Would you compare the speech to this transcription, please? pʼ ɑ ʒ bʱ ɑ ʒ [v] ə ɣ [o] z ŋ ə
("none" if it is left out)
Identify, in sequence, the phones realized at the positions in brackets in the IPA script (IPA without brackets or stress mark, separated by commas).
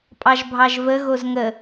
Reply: v, o